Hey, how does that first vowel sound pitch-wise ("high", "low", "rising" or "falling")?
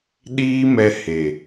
high